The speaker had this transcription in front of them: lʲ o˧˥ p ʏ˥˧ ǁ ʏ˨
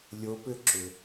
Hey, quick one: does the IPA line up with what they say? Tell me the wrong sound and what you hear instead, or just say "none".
none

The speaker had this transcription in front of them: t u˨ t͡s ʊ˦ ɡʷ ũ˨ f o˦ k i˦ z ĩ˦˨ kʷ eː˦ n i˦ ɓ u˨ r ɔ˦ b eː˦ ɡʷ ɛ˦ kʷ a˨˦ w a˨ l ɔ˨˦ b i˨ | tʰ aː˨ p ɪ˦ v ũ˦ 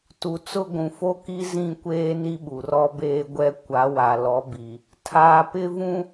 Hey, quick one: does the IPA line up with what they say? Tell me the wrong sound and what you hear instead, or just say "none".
none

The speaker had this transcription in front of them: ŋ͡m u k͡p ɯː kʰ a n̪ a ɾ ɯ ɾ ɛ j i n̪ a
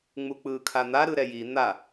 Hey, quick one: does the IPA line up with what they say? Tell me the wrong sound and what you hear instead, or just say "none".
none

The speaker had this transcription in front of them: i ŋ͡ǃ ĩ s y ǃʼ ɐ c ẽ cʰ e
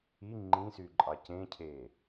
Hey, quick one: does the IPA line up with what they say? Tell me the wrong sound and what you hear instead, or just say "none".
ɐ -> ɑ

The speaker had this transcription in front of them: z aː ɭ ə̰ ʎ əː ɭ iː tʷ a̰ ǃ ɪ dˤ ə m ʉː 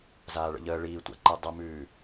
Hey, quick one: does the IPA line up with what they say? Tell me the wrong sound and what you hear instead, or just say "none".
ɪ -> i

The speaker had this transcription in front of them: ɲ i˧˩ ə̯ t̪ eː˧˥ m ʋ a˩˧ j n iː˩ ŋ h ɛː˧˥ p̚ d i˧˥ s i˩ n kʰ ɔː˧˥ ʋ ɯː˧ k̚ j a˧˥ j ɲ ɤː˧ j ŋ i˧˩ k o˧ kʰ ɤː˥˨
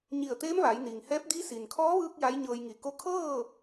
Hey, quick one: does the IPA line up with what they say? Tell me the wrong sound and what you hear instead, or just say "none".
none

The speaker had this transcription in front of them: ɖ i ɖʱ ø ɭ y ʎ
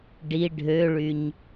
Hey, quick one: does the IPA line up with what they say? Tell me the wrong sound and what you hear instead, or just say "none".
ʎ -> ɲ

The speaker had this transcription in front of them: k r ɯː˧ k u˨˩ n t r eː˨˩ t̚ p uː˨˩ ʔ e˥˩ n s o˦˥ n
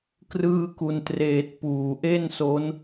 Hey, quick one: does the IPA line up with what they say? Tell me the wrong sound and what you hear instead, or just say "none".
none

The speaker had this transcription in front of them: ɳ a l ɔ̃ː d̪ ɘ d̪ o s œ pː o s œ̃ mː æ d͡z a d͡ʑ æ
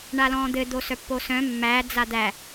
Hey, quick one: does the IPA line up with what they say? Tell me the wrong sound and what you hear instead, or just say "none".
d͡ʑ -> d̪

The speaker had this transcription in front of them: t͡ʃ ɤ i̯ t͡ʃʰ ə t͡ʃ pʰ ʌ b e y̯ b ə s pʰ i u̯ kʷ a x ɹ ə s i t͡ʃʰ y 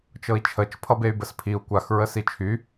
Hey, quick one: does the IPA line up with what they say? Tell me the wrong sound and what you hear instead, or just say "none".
none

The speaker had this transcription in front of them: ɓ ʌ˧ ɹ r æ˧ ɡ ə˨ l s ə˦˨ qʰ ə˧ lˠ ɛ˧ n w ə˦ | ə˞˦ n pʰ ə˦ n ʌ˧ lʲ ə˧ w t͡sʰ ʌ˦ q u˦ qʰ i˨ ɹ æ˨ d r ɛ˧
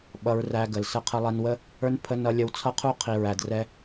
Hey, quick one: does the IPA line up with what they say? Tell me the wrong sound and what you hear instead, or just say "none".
q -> qʰ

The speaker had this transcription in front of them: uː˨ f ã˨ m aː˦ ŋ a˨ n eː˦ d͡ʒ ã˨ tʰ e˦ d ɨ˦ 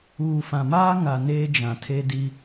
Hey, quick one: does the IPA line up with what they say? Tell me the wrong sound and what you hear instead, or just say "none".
ɨ˦ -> i˦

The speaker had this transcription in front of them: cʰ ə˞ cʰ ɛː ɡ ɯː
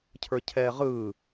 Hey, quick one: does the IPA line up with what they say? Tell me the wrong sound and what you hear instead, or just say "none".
ɡ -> ʁ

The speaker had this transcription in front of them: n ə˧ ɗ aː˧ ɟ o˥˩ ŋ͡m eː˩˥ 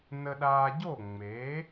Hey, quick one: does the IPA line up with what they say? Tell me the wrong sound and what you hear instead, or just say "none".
none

